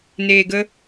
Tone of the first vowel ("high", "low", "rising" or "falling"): low